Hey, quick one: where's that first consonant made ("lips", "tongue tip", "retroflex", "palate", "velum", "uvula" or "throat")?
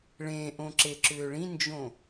retroflex